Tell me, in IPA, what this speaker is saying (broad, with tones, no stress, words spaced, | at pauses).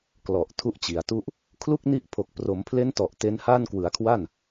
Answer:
klɔ˨˩ʔ tʰu˦˥ʔt͡ɕi˩˦a̯tu˥˩ʔ | kʰlu˥˩k̚ni˦˥ʔ pʰo˨˩k̚pro˩˦mpʰle˦˥ntɔ˨˩ʔ te˦˥nhaː˥˩n kwɯ˩˦a̯kʰwa˥˩n